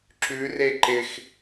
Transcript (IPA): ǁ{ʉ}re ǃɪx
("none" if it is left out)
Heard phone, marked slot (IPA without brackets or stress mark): ʉ